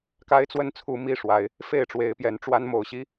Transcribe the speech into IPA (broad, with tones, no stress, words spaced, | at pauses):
ka˦ɪ̯t͡swə˥˨nt͡sʰu˨˦ mi˥˨ʂwa˨˦ɪ̯ | fe˥˨ɪ̯ʈ͡ʂwe˨˦ɪ̯pjɛ˨˦nʈ͡ʂwa˦n mo˨˩ʊ̯ɕi˦